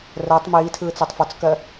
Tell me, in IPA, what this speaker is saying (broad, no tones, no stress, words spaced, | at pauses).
rɜtˤ miːtʰɯːt͡sɛtˤ fɔt͡skɜ